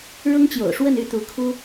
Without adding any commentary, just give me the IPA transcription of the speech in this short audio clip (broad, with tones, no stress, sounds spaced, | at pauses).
ɻ ʊ˥ ŋ t͡ɕ j o̰˨˩ ʊ̯ ʂ w ə˥˧ n y˥˩ t̪ u˧˥ kʰ u˥